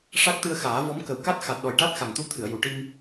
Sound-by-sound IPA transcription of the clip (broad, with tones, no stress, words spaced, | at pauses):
ʂa˦˥k̚t̪ɨ˧ə̯xaː˨˩˦ vɔ˧˥m kə˨˩wka˦˥t̚xa˨˩t̚ɗɔ˨˩j ʈa˦˥t̚xa˨˩ŋt̪u˧t̪ʰɨ˨˩˨ə̯ ju˨˩˨ʈi˧m